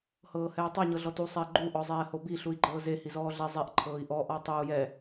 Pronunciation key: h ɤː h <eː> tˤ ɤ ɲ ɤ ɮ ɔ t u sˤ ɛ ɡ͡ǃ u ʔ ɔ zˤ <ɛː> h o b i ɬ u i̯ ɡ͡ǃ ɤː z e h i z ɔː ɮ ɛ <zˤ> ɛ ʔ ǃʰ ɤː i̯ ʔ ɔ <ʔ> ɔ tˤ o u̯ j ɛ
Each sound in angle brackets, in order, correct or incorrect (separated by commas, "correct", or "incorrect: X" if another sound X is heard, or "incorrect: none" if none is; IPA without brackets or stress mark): incorrect: ɛː, correct, correct, correct